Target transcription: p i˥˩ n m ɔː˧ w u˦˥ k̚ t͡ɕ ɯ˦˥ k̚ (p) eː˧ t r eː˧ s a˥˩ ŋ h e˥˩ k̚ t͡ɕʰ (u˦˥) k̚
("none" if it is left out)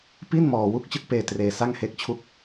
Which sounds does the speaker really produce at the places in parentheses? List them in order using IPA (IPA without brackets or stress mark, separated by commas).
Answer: p, u˥˩